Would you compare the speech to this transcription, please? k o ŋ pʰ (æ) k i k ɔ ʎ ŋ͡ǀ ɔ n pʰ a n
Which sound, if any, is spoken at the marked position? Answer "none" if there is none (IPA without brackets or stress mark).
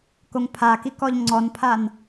a